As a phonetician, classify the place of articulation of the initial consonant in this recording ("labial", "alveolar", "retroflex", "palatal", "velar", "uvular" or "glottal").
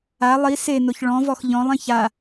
alveolar